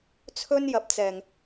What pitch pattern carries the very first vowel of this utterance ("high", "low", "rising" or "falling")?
high